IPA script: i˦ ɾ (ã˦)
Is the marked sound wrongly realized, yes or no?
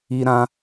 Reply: no